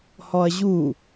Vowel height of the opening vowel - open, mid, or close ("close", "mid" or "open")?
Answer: mid